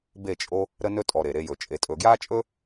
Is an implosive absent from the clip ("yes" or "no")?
yes